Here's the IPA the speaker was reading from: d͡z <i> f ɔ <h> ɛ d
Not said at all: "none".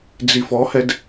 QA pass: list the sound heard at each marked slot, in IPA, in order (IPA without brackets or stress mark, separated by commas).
i, h